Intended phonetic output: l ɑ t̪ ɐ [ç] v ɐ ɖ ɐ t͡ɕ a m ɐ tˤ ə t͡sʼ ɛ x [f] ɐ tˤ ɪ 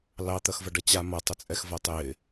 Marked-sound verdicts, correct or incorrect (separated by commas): incorrect, incorrect